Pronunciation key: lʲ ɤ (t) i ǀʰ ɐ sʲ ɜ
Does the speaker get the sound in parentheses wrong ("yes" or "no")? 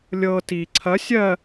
no